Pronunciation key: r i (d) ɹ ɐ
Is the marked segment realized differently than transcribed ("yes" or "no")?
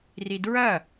no